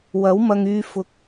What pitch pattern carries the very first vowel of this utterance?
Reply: rising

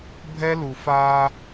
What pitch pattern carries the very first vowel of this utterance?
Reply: high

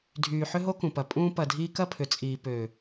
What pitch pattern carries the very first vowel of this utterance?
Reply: low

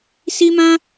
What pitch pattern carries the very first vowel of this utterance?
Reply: high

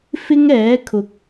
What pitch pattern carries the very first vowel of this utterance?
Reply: high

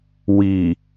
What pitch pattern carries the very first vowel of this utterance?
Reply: low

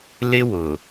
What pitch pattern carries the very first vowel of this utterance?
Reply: high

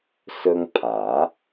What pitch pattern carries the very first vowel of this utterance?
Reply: high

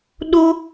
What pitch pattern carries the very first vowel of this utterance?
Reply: high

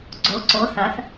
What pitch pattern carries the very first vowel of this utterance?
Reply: rising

